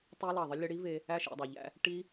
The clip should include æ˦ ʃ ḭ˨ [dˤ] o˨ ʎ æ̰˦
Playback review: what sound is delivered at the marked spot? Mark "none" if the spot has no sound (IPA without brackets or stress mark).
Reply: dˤ